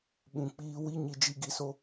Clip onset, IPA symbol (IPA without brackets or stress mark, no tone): ɓ